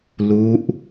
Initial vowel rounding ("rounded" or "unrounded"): rounded